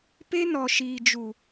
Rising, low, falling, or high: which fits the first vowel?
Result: high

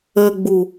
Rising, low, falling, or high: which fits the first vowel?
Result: low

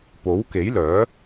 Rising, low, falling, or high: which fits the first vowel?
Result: rising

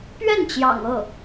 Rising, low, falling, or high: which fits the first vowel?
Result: falling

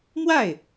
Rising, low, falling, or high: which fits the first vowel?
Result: falling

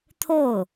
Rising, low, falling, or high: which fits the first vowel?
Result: falling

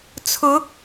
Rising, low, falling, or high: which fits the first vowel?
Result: rising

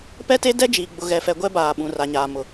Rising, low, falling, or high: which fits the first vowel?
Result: high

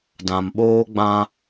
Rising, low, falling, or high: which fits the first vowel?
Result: low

